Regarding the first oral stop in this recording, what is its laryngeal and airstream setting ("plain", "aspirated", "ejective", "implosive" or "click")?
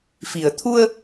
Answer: aspirated